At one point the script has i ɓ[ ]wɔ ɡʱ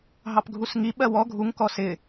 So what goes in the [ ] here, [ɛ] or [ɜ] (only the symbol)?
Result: ɜ